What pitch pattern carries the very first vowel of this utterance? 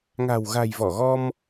low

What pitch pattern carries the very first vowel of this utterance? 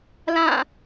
falling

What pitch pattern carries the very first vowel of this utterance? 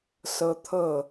high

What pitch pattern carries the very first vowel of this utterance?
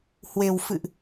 low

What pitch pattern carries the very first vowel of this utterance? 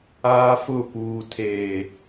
high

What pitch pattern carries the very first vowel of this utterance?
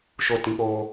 falling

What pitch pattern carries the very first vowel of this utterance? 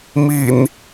low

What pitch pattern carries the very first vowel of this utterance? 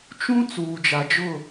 high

